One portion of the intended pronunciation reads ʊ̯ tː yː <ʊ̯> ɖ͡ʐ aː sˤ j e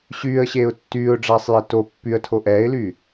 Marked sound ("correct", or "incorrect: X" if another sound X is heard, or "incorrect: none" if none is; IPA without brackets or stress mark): correct